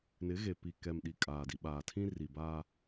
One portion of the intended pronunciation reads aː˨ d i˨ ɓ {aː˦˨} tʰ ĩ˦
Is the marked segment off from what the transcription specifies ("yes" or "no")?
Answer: yes